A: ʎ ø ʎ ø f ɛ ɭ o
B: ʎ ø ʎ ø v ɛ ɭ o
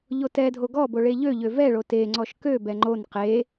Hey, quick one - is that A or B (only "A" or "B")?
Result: B